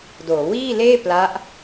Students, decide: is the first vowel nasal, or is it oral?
oral